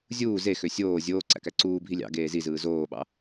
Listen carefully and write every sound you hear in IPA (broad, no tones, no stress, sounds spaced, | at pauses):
zʲ uː z e x ø sʲ oː zʲ oː ǀ æ̰ k æ ǀ uː bʱ i lʲ ɑ̰ ɡ eː z i z ɯː z oː ɓ ɑ̰